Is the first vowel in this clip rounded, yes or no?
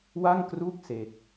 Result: no